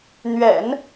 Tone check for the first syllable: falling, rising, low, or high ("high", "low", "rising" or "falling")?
low